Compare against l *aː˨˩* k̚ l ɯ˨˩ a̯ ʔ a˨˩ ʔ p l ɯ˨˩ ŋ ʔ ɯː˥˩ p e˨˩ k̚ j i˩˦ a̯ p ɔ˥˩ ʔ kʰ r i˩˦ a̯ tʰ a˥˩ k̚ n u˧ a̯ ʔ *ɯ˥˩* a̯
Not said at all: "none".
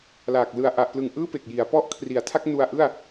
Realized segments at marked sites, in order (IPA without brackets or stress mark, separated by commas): aː˨˩, ɯ˥˩